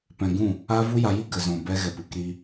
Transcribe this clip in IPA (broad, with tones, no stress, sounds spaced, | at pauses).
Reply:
p ɛ̃˧ ɡ ũ˦˨ | aː˦ v u˦ j a˧ j i˦ ɡ ə˨ z ɔ̃˨ b ɛ˧ ɣ ɛ˨ p ɨ˦ k ɾ i˧